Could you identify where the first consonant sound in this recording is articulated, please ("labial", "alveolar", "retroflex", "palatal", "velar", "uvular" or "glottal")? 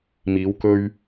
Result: labial